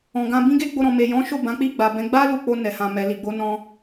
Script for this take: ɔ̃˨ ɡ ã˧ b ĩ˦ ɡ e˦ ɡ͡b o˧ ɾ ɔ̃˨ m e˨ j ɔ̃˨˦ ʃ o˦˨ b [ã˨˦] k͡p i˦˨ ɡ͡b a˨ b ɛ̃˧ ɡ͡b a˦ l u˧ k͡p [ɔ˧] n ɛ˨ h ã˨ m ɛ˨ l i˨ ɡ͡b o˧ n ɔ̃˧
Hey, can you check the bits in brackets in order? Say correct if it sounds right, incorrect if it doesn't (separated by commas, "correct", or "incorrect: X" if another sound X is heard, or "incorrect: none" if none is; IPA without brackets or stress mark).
correct, incorrect: o˧